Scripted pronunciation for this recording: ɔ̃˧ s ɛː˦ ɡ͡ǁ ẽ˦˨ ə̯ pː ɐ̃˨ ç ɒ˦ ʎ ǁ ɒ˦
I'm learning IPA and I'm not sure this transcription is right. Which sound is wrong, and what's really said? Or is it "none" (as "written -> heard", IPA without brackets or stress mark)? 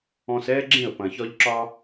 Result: pː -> p